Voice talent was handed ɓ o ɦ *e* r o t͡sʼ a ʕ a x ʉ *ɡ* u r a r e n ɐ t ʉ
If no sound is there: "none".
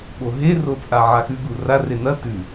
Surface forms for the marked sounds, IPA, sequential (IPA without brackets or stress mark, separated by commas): e, ɡ